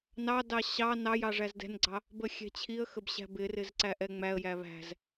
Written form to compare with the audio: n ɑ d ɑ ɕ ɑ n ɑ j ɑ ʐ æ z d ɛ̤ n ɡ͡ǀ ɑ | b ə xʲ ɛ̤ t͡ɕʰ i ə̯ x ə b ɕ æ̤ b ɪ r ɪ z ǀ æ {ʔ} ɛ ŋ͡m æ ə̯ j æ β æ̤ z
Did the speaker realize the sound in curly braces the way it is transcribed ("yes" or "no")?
yes